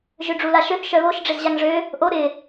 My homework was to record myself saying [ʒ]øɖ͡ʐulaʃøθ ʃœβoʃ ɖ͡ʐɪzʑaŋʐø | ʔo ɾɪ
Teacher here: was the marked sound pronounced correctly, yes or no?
yes